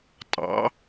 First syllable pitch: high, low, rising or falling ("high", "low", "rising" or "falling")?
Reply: rising